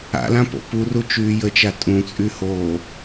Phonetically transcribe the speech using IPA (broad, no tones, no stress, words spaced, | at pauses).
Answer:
a̰lã po̰puru t͡ʃyːjət͡ʃa tʼũt͡sʼyhoː